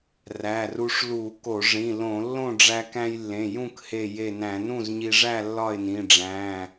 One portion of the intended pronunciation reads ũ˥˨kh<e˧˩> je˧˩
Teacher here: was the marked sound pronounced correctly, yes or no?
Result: yes